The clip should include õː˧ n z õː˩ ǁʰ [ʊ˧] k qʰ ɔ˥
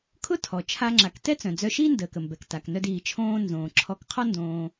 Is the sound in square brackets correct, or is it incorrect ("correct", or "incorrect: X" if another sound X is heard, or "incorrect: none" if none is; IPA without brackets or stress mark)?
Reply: incorrect: ɔ˧